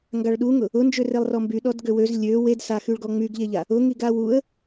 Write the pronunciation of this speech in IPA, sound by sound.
ŋ ɡ a ɭ ɗ u ŋ ʊ | ʊ n d͡ʒ ø r e lˠ r ɔ m b y ɗ ɔ d ɡ ø w ø z lʲ ø w e d s a x y ɭ ɡ ɔ ŋ͡m y ɡ ʎ e ʎ a | ʊ ŋ i ɡ a w u ə̯

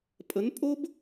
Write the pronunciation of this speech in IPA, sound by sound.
pʼ ə n pʼ o b

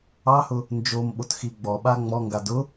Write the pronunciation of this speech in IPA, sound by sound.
ɑ h ʊ | n d͡ʒ o m ɓ o t x i ɡ͡b ɔ ɓ a ŋ͡m ɔ ŋ ɡ a d ʊ

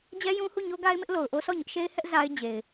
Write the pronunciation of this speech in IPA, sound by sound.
d͡ʑ ɛ˦ j ũ˦ h u˦˨ ɲ o˦ ɡ a˦ ɪ̯ m ɪ˦ ʔ l o˨ ʊ̯ ʔ o˦ sʰ ɔ˦˨ ɲ ʊ˦ ʔ ʃ e˦ ɪ̯ h ɛ˦ ʔ z a˦ ɪ̯ d͡ʑ e˨ ɪ̯

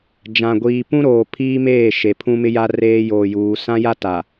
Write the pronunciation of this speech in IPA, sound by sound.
d͡ʒ ã˨ ɡʷ iː˨ p ũ˦ ɾ oː˨ pʰ iː˦ m eː˦˨ ʃ e˨ pʰ ũ˦ m ɪ˦ j a˦ r eː˦ j oː˨ j uː˨ s ã˦ j a˦ t a˨

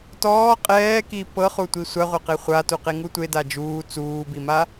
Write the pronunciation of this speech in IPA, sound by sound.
t ɔː qʼ ɛː k i p ɤ χ u tʷ i sʷ a ʁʷ ɤ q e χʷ a t u q e ŋ u tʷ e d a d͡ʒ uː t͡s uː b i m a

